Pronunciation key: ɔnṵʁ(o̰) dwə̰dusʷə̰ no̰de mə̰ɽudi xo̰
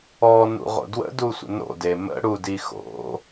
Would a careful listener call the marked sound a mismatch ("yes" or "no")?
no